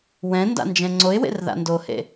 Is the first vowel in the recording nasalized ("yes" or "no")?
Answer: yes